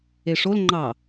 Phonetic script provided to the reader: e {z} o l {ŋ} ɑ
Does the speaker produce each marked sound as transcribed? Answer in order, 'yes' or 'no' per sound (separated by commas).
no, no